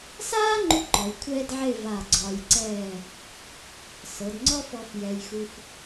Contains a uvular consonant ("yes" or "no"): no